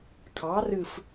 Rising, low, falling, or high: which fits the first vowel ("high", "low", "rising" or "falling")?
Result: rising